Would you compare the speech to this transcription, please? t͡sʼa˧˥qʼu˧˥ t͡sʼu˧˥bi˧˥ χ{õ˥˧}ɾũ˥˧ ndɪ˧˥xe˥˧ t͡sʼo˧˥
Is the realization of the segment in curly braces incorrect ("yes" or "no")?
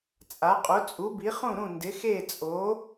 yes